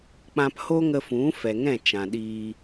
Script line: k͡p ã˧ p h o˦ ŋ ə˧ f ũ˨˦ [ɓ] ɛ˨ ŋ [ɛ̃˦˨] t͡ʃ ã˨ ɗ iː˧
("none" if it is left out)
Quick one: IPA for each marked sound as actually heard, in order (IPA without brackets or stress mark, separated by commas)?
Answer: f, ɛ̃˦˨